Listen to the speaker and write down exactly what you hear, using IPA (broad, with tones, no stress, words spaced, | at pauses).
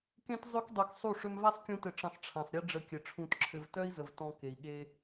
kẽ˦t zˤø˦kdˤœ˧ksˤu˦˨ ʂø˧mva˦sˤkʲũ˧tɘ˨ ʈ͡ʂə̃˨sˤ ʈ͡ʂʰã˨sˤɾʲe˦ɖ͡ʐə˧kʲɘ˨ ʈ͡ʂʰũ˧tǁʰɘ˧v tœ˦i̯zə˨v tɔ̃˧ ke˨i̯ɠe˦